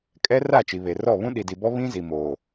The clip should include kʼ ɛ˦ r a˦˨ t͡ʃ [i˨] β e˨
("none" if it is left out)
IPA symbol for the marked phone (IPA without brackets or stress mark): i˨